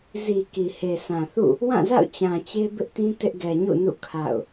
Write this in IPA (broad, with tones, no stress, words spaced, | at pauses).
zi˨ ki˨he˨sã˨ θṵ˦˨ | wã˦˨za̰˦˨ʊ̯ t͡ɕã˨t͡ɕe˦bɪ˦ʔtĩ˦ tɪ˦ʔɡɛ˨ɲṵ˦˨nṵ˦˨ kʰa̰˦˨ʊ̯